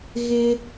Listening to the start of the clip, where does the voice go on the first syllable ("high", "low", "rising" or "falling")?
high